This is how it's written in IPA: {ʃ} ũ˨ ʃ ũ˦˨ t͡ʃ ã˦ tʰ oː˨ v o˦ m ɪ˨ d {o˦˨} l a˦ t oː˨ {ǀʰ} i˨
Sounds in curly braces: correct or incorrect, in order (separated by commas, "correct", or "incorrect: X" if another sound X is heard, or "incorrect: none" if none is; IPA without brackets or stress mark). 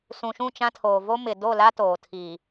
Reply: incorrect: s, correct, incorrect: tʰ